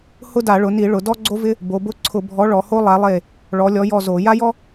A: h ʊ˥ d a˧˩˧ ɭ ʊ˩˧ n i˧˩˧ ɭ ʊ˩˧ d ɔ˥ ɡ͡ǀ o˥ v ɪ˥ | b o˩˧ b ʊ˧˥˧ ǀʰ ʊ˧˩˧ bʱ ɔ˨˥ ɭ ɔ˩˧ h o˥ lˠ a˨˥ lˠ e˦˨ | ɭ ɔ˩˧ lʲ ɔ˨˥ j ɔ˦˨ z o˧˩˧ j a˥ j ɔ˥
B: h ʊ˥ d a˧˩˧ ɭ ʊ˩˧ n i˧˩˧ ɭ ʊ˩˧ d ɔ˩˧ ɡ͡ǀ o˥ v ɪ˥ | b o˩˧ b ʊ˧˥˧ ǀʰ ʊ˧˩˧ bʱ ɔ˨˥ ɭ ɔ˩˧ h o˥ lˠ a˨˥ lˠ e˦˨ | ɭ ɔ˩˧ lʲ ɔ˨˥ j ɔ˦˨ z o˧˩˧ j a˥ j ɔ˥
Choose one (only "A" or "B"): A